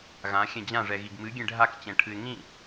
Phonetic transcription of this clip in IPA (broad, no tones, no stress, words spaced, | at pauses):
ɣãxʲɛ̃ d͡ʑãʐɛɣiɡ mɨɡʲẽ ɖʱakt͡ɕɛ̃ʈʰɨɪ̯ ŋĩ